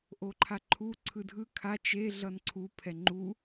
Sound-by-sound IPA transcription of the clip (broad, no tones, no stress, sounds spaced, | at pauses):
ʔ o ǃʰ a ǃʰ u ǀʰ ɯ dʱ ɯ kʰ a t͡ʃ e ɮ ʌ n ǀʰ u pʰ ɛ ŋ͡ǃ u